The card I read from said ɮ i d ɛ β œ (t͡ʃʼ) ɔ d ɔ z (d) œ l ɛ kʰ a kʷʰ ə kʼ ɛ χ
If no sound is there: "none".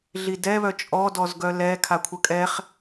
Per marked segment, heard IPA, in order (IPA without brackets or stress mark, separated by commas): t͡ʃʼ, ɡ